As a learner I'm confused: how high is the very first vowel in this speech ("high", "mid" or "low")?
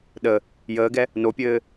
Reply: mid